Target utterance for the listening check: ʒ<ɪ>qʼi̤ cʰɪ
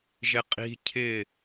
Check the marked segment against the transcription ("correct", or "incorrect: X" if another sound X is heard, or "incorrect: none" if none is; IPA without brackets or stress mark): correct